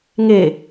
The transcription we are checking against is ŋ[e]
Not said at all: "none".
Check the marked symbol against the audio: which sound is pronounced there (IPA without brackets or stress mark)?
e